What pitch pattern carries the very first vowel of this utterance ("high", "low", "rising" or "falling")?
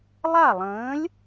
falling